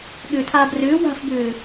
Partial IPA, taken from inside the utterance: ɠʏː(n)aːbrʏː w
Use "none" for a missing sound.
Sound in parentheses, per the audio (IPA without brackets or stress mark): tʰ